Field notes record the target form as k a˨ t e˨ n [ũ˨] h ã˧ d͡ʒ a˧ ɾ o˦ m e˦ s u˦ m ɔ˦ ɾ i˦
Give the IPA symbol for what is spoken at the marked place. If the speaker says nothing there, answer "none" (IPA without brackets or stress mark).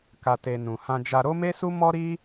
ũ˨